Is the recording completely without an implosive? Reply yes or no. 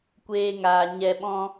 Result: no